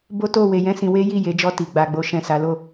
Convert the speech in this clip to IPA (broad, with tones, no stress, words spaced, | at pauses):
bo˦to˦˨we˧jɛ̃˦ sĩ˧we˦ji˦˨ je˨˦ d͡ʒɔ˧ ti˨ ɡ͡ba˨ɡ͡bo˨ʃɛ̃˨ sa˨˦lo˦˨